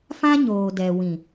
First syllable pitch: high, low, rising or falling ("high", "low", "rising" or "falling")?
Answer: high